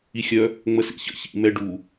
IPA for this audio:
ixʲœ | ŋ͡məsḭçə̰ çḭ mɛɖu

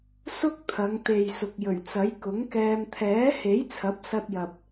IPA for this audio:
sʊ˥k̚t̪ʰɐ˨˧ŋ t̪e˨jsʊ˨k̚jɵ˨˩ɥt͡sɐ˨˥j kʊ˨˥ŋkɛː˧m t̪ʰɛː˨˥he˨˥j t͡sʰɐ˨˥p̚sɐ˧t̚jɐ˨p̚

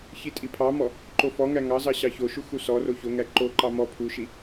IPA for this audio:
çitʼipʰɑmɔ | ǃofɔŋæ ŋɑzɑ ɕɑçoʃu xusɔro çoŋæ ǃoǃɑ mɔ pʰuʃi

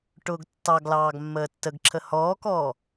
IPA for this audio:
ʈʊːɡtːɑɡlɑːɡ mːəːtːəɡǁʰə hɔːkɔː

